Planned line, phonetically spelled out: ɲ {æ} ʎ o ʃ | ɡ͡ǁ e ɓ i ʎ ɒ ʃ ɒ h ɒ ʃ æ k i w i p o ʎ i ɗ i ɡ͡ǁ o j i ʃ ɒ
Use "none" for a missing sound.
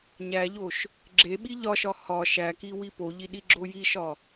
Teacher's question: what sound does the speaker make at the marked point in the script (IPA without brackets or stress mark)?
æ